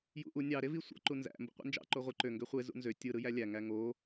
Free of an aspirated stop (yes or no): yes